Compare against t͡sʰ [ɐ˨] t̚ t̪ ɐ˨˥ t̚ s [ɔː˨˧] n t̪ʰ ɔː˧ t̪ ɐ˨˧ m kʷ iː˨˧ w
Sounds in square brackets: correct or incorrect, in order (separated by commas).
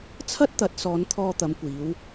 incorrect, correct